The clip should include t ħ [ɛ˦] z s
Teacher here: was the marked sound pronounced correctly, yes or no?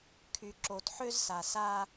no